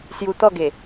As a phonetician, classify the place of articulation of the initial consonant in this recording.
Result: alveolar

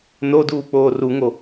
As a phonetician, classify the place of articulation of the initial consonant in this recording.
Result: alveolar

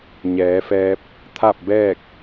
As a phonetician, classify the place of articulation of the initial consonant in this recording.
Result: palatal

